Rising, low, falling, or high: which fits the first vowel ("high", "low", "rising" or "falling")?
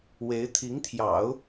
rising